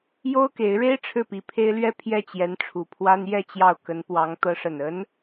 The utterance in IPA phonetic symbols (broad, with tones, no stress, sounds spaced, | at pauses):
j o˥ ʊ̯ k e˧˥ ɪ̯ ɻ e˥ ɪ̯ ʈ͡ʂʰ ɻ̩˥˩ p i˧˥ pʰ e˥ ɪ̯ l ɥ ɛ˥˧ pʰ j ɛ˥˩ t͡ɕ j ɛ˧˥ n ʈ͡ʂʰ u˨˩ pʰ w a˥ n j ɛ˥˧ t͡ɕ j ɑ˥˩ ʊ̯ k ə˧˥ n p w ɑ˧˥ ŋ t̪ ɤ˧˥ ʂ ə˨˩ n ə˧˥ n